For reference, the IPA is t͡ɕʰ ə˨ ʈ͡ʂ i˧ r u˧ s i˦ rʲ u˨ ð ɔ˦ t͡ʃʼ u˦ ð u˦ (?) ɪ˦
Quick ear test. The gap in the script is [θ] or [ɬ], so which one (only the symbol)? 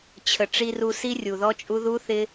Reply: θ